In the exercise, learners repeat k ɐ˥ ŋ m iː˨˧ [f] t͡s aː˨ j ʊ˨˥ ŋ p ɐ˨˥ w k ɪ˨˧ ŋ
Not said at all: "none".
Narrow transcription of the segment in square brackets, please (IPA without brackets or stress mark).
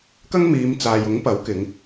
m